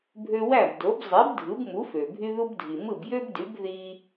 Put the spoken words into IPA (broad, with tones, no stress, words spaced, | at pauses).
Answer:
bʱø˧wæ˥˩bdo˩˥b zˤe˩˥b dʱɯ˩˥bmu˩˥fø˩ bʱy˧ðu˧bdʱi˩ mɯ˥˩bjø˥bdy˩˥b ði˧